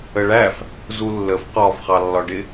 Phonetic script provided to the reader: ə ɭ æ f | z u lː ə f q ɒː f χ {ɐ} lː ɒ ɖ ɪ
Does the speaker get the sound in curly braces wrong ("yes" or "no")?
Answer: yes